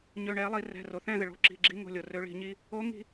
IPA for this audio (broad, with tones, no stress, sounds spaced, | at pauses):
ɲ ø˩˧˩ ɳ ɛ˧˩˧ lˠ i˧˩˧ r ɛ̤˩˧˩ r o˩ θ ɛ̃˦˨ ð ɪ˩ ɭ o̤˨˥ ǁ i̤˩˧˩ ɡ͡ǁ i˨˥ ŋ o̤˦˨ lʲ o˩ r ø˨˥ ɭ i̤˦˨ ɲ i˦ | o˨˥ ŋ i̤˦˨